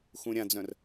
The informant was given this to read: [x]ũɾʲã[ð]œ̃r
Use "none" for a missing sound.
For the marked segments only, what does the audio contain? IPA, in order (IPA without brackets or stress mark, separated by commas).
x, d͡z